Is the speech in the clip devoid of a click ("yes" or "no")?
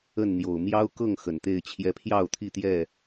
yes